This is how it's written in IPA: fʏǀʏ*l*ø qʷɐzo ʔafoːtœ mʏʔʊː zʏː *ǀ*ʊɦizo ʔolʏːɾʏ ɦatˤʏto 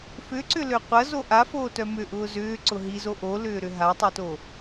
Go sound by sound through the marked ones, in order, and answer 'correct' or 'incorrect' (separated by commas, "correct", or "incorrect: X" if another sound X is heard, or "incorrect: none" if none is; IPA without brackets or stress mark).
correct, correct